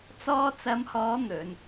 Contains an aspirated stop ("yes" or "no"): no